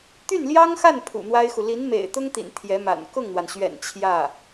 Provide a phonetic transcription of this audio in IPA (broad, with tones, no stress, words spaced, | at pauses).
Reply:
t̪y˥˩nljɑ˥ŋxa˥˩n pʰṵ˨˩n̪wa˥ɪ̯xu˨ li˧˥nmḛ˨˩ɪ̯t̪ʊ˥ŋt̪ḭ˨˩n t̪ʰjɛ˧˥ma̰˨˩n kʊ˥˩ŋn̪wa˩nɕɥɛ̰˨˩n t͡ɕʰjä˥˩